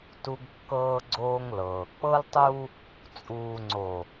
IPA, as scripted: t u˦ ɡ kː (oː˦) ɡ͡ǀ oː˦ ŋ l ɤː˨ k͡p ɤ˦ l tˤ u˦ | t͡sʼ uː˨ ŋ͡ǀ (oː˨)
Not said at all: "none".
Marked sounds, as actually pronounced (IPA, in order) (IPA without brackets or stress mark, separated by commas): ɤː˦, o˨